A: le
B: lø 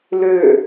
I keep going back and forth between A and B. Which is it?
B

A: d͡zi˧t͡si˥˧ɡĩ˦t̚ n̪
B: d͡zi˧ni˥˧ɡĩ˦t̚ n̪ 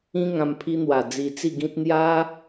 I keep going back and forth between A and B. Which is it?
A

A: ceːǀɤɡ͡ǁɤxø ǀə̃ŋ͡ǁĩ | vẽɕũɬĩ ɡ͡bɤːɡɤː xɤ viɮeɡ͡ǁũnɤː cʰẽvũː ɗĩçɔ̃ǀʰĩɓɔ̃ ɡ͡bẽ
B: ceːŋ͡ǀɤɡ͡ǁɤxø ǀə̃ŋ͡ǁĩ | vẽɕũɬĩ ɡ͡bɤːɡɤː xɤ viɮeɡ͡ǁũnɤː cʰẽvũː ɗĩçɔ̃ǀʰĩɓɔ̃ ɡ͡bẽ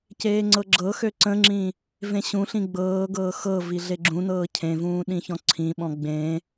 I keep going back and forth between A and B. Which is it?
B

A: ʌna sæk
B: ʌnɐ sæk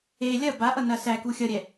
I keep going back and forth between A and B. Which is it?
B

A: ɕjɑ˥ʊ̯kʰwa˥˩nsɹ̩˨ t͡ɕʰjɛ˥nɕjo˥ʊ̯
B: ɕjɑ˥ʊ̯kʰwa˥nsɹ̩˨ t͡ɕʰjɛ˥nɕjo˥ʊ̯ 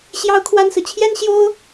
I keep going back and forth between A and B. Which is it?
B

